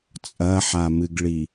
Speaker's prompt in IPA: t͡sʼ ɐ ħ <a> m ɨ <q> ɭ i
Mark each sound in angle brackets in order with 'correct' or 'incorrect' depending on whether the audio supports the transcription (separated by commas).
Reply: correct, incorrect